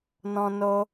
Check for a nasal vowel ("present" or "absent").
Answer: present